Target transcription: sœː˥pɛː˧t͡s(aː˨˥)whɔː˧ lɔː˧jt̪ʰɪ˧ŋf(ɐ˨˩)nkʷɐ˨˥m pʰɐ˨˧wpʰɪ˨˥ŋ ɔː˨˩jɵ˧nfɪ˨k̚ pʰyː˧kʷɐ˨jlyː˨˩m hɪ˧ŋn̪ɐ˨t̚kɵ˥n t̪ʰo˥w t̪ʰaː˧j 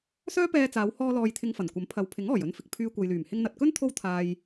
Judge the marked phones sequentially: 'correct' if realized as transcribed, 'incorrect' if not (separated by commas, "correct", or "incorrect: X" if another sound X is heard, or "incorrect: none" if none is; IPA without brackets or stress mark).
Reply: incorrect: aː˨˧, correct